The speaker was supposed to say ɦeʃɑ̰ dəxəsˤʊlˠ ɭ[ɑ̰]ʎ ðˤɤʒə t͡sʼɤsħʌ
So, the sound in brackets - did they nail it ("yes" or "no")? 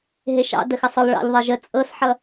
yes